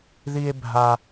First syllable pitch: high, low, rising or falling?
high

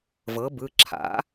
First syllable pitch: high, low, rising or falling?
rising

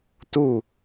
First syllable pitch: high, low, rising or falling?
falling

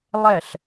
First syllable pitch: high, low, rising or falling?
falling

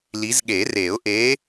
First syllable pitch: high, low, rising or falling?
rising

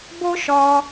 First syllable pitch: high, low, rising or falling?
high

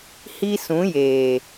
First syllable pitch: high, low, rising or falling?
high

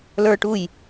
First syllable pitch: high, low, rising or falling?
high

